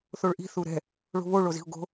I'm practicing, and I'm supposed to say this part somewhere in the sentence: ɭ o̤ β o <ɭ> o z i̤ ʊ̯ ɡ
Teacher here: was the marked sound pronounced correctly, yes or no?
yes